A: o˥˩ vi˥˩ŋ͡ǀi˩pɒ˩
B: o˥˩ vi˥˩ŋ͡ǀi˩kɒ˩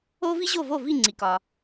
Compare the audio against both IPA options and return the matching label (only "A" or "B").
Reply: B